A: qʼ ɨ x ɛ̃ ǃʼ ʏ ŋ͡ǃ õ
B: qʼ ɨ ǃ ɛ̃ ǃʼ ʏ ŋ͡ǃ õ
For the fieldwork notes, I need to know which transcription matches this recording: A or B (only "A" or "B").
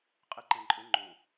B